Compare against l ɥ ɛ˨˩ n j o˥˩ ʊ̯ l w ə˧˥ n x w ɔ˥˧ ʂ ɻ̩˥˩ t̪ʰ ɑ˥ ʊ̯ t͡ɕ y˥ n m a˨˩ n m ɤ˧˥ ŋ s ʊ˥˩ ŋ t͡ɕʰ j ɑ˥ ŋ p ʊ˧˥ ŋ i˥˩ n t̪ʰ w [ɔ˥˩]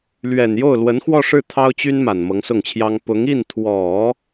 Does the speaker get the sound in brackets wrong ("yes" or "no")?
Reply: yes